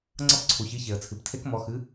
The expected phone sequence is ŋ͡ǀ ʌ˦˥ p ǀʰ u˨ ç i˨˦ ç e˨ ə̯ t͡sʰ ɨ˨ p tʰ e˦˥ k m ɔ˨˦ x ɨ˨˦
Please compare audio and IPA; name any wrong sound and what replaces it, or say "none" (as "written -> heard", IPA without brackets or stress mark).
none